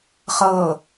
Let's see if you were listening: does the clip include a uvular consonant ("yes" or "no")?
yes